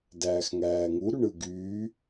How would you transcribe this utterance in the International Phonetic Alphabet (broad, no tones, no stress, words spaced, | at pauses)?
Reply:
dæːxŋæːŋu ɾyɳɯɡyː